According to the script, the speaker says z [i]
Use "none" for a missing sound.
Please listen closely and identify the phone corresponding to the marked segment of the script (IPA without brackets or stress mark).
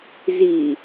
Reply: i